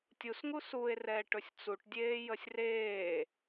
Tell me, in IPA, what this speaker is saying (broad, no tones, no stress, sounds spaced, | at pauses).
tʲ u s ŋ u s u e̯ r ɛː ʈ ɵ sʲ t͡s u ʈ dʲ eː j ə sʲ r eː